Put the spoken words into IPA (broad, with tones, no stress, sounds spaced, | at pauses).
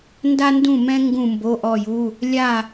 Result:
n d a˥ n d ũ˥˧ m ɛ̃˥ ŋ ɡ ũ˥˧ m b o˧˥˧ ʔ ɔ˥˧ j u˧˥˧ | lʲ a˥˧